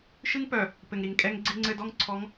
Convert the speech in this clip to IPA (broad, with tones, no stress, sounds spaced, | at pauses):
ʃ ɨ˦ ŋ p œ˨ | p ɘ˨ ŋ ɾ i˨ ŋ kʼ ɛ˦ ŋ ɡ͡ǀ i˦ ŋ͡ǀ ɘ˦ d ɔ˦ ŋ ǀʰ ɔ˨˦ ŋ